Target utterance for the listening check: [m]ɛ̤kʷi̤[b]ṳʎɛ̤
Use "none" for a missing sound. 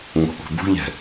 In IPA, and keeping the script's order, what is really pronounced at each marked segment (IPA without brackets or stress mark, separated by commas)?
ŋʷ, b